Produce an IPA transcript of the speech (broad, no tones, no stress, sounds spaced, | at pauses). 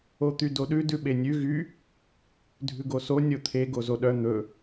o t̪ y d o ɗ ʉ d ʉ ɓ e nʲ ʉ ɣ y | dʱ ʉ ɡ o s o nʲ o t̪ʰ e ɡ o z o ɗ œ n̪ ɵ